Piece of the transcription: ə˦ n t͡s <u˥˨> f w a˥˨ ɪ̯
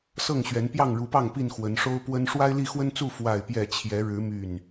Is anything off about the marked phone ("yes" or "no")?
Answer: no